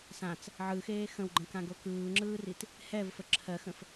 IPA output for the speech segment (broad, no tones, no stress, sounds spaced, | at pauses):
s ã t͡s | ʕ ɯ x eː x ə̃ w ɡ͡ǃ ə̃ k ã ɡ o k ɯː ŋ͡ǁ ɯː r i t | h ɛ v f ə ǁʰ ɜ x ə̃ f